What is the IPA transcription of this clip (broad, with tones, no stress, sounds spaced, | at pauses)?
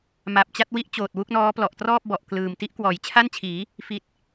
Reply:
m a˨˩ p̚ t͡ɕ a˥˩ t̚ w i˦˥ ʔ t͡ɕ oː˨˩ t̚ w u˥˩ k̚ n ɔː˦˥ p l ɔ˨˩ ʔ t r ɔː˥˩ p̚ b ɔ˨˩ ʔ k l ɯː˨˩ m t i˦˥ ʔ k w ɔː˩˦ j t͡ɕʰ a˥˩ n t͡ɕʰ iː˩˦ | f i˨˩ t̚